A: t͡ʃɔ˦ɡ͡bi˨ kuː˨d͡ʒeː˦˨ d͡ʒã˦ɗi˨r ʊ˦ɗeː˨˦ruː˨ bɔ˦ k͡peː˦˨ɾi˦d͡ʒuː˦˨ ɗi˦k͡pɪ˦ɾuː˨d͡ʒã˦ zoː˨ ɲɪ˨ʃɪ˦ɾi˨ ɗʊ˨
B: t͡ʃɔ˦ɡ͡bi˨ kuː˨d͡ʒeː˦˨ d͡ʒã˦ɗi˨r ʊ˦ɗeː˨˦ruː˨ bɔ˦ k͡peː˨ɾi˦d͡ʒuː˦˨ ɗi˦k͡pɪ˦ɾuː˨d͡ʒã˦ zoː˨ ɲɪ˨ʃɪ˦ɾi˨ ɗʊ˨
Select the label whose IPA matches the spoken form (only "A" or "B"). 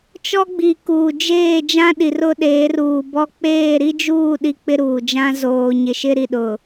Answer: A